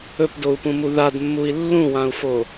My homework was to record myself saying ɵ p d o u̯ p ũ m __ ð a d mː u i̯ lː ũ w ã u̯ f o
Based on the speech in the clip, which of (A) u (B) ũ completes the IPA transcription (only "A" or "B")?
A